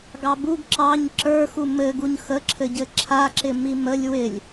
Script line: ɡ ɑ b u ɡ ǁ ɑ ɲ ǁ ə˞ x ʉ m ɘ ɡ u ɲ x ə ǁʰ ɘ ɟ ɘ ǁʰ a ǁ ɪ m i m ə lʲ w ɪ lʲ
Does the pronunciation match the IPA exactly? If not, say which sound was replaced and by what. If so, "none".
ʉ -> u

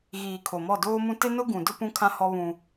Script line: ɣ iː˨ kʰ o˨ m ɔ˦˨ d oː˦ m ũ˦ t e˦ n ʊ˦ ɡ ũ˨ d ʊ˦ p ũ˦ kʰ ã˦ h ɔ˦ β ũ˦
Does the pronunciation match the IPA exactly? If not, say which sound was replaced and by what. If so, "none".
none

